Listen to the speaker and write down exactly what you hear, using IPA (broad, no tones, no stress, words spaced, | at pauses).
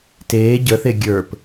teː ɟəθe ɡʲə˞p